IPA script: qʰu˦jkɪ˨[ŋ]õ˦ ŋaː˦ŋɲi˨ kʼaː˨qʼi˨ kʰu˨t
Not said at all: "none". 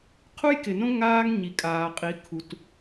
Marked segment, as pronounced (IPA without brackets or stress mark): n